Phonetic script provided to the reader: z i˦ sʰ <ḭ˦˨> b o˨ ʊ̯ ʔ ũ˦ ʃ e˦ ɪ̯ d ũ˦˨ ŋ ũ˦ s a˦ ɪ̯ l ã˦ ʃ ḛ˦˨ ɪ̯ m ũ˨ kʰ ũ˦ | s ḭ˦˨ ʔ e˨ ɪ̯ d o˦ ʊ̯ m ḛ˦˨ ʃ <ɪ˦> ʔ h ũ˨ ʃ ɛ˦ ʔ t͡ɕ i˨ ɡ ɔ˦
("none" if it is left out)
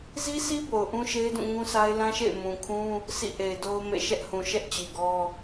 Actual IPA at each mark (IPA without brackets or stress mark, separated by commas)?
i˦, ɛ˦